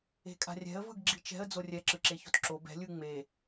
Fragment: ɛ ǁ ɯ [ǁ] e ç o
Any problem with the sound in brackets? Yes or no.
no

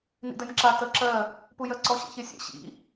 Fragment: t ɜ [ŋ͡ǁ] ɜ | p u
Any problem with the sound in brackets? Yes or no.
yes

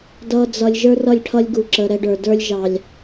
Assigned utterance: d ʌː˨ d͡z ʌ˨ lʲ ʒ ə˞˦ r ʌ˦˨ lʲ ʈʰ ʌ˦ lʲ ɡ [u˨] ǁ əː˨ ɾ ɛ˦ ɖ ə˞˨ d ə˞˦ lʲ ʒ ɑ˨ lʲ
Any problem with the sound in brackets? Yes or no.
no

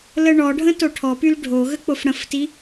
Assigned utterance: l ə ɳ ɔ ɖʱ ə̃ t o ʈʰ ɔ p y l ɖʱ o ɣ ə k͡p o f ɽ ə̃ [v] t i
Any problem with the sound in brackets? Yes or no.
yes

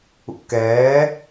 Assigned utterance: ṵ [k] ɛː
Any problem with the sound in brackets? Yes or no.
no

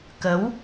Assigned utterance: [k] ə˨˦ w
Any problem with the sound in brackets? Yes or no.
no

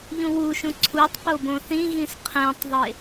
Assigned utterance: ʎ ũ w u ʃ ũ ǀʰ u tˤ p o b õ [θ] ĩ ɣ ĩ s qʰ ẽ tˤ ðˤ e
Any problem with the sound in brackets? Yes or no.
no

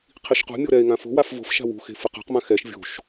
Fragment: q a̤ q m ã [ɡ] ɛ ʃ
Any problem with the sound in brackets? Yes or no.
yes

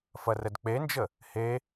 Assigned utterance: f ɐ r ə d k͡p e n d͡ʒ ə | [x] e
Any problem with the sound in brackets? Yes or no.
yes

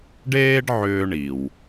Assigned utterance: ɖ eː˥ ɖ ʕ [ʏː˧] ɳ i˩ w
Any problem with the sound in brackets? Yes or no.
no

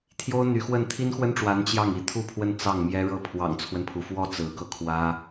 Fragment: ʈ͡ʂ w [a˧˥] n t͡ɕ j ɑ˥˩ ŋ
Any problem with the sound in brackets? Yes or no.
no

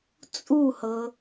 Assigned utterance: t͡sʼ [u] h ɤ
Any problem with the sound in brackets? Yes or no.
no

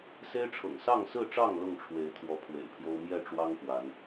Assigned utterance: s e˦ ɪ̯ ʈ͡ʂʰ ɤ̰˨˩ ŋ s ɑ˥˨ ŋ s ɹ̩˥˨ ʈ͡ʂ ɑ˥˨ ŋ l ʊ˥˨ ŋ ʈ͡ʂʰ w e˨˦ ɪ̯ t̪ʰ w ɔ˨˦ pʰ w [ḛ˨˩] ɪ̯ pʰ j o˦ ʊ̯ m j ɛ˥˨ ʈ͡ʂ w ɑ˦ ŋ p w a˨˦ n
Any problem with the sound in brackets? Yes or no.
no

